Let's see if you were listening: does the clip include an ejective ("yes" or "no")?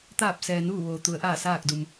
no